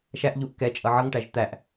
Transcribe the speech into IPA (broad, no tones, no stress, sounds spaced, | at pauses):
ʃ æ ʔ ʎ u ʔ k ɛ t͡ʃʼ ʌ ʕ ʌ ŋ ʈ æ ʒ t̪ æ ʔ